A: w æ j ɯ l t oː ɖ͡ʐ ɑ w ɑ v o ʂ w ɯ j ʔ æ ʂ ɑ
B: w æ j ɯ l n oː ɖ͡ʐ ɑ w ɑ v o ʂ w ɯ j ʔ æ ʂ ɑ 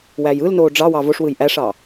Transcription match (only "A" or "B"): B